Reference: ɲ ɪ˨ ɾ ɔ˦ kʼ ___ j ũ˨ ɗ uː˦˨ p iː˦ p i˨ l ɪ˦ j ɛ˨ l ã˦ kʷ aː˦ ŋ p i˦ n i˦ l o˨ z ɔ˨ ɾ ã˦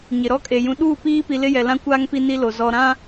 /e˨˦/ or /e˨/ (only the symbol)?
e˨